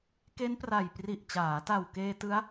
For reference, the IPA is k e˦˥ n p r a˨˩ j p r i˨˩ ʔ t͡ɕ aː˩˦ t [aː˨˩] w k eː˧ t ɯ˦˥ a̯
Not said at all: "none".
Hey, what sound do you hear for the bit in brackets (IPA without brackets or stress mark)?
a˨˩